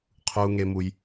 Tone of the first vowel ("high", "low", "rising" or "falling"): low